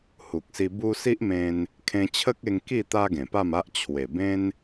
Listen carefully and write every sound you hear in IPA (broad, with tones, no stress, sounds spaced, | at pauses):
h u˨ k̚ s i˧ b u˦ s i˦ ʔ m ẽ˧ n | kʰ ẽ˧ t͡ɕʰ ə˦ k̚ e˧ ŋ k i˥˧ t̪ a˦ ɡ ẽ˨˩ p a˥˧ m a˦ ʔ t͡ɕʰ w e˨˩ b ẽ˦ n